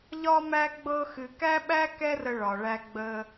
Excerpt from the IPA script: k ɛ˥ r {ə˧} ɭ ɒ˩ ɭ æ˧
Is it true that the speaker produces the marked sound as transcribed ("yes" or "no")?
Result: yes